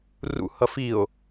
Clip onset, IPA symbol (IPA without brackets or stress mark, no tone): r